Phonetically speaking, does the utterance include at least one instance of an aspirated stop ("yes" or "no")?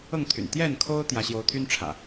yes